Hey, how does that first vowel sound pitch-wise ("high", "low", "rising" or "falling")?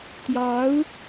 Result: rising